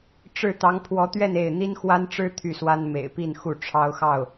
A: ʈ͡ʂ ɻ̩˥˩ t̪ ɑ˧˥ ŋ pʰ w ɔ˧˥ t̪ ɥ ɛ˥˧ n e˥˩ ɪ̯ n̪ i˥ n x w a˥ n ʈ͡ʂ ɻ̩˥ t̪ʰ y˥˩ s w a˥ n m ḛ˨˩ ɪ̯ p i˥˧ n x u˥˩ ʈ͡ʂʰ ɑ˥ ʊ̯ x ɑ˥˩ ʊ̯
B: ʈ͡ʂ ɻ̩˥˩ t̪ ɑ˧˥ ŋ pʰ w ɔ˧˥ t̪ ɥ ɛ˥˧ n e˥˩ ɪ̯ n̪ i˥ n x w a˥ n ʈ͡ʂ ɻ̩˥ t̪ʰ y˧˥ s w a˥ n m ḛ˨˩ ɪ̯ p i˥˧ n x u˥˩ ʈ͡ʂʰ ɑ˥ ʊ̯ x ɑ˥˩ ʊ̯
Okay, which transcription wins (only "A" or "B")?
A